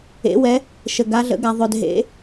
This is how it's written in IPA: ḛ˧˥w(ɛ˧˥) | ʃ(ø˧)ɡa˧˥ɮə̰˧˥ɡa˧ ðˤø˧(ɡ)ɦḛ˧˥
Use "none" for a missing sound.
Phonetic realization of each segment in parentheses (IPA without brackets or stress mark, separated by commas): ɛ˧˥, ə˧, d